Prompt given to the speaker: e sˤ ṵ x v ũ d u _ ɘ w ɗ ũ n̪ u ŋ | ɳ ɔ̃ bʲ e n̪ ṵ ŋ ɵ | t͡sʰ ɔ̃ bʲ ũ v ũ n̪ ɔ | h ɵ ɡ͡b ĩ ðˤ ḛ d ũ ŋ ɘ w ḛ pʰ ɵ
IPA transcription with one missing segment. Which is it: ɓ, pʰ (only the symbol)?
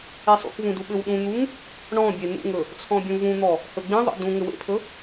ɓ